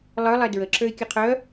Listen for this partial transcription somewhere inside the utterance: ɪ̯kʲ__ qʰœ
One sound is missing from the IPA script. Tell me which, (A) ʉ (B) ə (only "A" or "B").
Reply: B